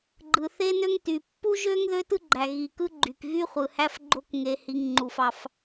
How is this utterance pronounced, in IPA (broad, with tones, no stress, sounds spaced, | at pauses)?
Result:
ɡ͡ǃ ɯ˩ θ e˥ n ø˥ ŋ t y˩ pː u˥ ʒ ø˥ ŋ ð ø˥ t ɯ˥ ɡ͡ǃ æ˩ ɣ i˩ k ɯ˥ ɡ͡ǃ y˩ k ɣ y˥ χʷ ɯ˩ h æ˥ f ɡ͡ǃ o˥ k ŋ e˩ h i˩ ŋ ŋ͡ǃ u˩ f ɑ˩ f